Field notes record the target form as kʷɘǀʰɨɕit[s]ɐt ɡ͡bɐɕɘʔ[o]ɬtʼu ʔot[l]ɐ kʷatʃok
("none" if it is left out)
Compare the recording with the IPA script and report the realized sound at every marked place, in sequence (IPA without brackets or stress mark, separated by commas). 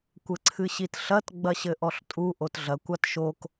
ɬ, ɔ, ɮ